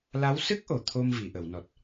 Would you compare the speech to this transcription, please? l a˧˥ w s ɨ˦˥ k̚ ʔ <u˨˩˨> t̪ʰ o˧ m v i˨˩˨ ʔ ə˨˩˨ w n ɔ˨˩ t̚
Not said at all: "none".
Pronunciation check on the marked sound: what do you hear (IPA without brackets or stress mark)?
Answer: o˨˩˨